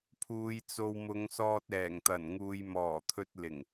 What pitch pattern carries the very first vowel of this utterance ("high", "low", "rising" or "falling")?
low